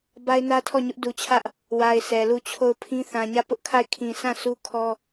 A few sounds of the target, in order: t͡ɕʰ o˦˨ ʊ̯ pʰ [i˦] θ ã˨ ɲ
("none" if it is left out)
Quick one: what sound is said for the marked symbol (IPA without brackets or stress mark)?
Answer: ĩ˦